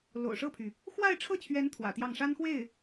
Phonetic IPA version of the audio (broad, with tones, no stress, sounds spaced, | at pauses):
l o̰˨˩ ʊ̯ ʂ ɤ˥˩ pʰ y˩ | x w a˥˧ ɪ̯ ʈ͡ʂʰ ɤ˥˩ t͡ɕʰ ɥ ɛ˧˥ n t̪ʰ w ä̰˨˩ t̪ j ɑ˥˩ ŋ ʂ a˥ n x w e˥˩ ɪ̯